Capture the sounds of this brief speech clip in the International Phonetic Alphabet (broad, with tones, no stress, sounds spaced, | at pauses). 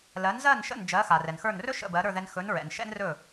l ɜ˩˥ n z ɜ˥˩ n ʃ ə̰˥˩ n d͡ʒ ɜ˩˥ x a˩ r ɛ˩ n x ə˞˥˩ n r ɵ˥ ʃ ə̰˥˩ b ɜ˩˥ ɾ ə˞˥˩ ð ɛ˧ n x ɵ˩˥ n ɹ ɛ̰˩ n ʃ ɛ̰˥ n r ɵ˥˩